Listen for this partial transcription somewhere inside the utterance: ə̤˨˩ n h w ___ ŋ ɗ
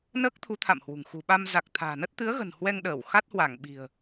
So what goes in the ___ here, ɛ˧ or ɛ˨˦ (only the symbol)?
ɛ˧